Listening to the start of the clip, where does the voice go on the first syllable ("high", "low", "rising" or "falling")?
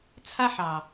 high